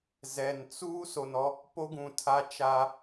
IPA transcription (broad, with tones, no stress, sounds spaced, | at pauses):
z ɛ˨ n t͡s uː˦ s o˨ n ɔ˦ | p o˦ ɡ ũ˨ tʰ a˦ t͡ʃ a˦